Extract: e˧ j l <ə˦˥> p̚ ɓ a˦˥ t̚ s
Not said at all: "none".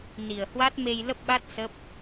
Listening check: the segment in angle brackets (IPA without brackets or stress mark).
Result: ə˦˥